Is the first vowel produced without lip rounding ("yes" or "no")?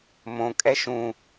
no